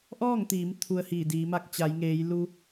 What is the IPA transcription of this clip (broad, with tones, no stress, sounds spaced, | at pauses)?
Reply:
ʔ ɔː˥˨ ŋ t̪ iː˩˧ m t̪ʰ u˧ ə̯ h iː˧˩ d iː˩˧ m a˧ k̚ t͡ɕ a˩˧ j ŋ eː˩˧ j l u˧